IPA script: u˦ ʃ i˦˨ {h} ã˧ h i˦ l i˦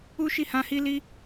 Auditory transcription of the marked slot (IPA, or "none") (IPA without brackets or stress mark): h